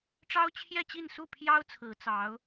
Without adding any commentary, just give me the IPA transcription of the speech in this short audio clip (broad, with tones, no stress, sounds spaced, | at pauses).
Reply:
ʈ͡ʂ ɑ˥ ʊ̯ t͡ɕʰ j ɛ˥˧ t͡ɕ i˥˧ n s u˥˩ pʰ j ɑ˥ ʊ̯ t͡sʰ ɹ̩˧˥ t͡s ɑ˧˥ ʊ̯